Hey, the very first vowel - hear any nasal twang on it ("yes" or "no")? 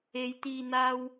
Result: no